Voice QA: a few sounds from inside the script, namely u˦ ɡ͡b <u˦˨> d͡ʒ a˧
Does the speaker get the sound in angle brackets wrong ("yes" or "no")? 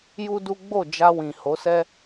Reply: yes